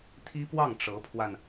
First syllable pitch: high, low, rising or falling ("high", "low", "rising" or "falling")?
high